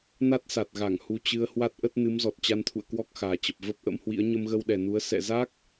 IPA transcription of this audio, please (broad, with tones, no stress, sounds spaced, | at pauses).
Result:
n a˦˥ t̚ s a˨˩ t̚ ɣ a˧˩ ŋ h u˧ t͡ɕ ɨ˧ ə̯ h w a˦˥ t̚ ʔ ə˦˥ t̚ n ɨ˨˦ m z ɔ˨˩ t̚ t͡ɕ a˧ n t̪ʰ ṵ˧˨ ə̯ k w ɔ˦˥ k̚ x aː˨˩ t͡ɕ ə˨˩ p̚ v ə˦˥ p̚ ʔ ə̰˧˥ m h w ḭ˧˥ ə̯ ɲ ə˧ m ɣ ə˧ w ɗ ɛ˨˩ n u˨˦ ə̯ s ɛ̰˧˨ z aː˦˥ k̚